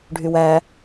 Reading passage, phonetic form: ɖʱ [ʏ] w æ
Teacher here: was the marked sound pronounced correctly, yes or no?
no